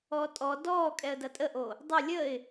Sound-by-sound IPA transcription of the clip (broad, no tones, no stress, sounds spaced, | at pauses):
ɔː tʼ ɔ d ɔː kʼ ɛ ə̯ d ɐ tʼ ə ʔ o | dˤ ɐ lʲ əː ɪ̯